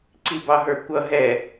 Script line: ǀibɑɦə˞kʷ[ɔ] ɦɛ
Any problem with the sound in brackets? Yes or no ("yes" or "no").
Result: yes